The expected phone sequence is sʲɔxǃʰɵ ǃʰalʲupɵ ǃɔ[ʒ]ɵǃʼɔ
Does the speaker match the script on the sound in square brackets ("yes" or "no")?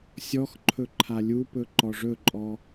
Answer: no